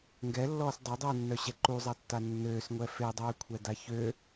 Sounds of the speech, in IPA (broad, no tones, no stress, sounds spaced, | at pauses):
ŋ ɡ ɛ lː ɔː s dˤ ø dˤ i w nː œ ɕ ɛ ǃ u zˤ a tː a nː øː s ŋʷ ɛ f e dˤ yː kʷʰ ɛ d a ç ø